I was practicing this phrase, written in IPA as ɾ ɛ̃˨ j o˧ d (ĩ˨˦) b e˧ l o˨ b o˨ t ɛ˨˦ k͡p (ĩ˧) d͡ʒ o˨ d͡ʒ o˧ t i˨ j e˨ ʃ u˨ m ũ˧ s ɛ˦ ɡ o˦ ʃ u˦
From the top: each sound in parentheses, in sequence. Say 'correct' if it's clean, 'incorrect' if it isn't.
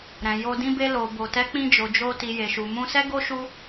incorrect: ĩ˧, correct

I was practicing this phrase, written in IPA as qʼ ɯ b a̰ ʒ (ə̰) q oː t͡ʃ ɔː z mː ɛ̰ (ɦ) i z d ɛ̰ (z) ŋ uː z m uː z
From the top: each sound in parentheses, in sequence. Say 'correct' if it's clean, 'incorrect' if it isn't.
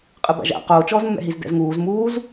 incorrect: a̰, correct, correct

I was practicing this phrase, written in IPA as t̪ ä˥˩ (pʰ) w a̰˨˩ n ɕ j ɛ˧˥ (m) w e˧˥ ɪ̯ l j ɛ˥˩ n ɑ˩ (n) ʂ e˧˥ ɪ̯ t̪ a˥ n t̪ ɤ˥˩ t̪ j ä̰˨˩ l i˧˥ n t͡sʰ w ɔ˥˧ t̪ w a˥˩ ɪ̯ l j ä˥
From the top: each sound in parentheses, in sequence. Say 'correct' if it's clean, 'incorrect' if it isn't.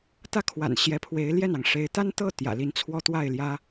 incorrect: kʰ, incorrect: pʰ, incorrect: ŋ

